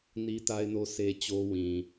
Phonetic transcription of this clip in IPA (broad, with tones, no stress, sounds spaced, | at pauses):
n i˦ t a˦ ɪ̯ n o˦ sʰ e˦ t͡ɕ o˦ w ĩ˨